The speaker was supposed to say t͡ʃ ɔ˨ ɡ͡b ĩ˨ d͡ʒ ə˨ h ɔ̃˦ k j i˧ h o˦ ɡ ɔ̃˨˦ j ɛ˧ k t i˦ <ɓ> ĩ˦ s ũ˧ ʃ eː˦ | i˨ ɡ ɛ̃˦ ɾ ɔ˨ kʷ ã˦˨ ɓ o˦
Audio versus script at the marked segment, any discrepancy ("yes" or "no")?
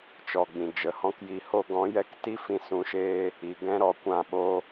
yes